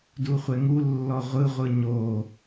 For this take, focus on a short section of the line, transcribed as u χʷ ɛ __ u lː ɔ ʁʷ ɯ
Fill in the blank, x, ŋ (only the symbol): ŋ